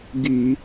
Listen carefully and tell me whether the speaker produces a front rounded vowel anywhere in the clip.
yes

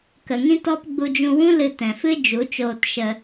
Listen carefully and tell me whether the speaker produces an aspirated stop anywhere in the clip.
no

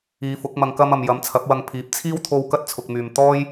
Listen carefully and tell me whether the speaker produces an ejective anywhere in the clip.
no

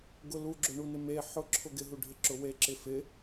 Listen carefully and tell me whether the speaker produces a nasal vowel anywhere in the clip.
no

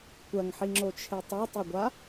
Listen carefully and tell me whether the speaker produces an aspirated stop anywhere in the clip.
yes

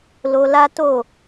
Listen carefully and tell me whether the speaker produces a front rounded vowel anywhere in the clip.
no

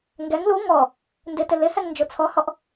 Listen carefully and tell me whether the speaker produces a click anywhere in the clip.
no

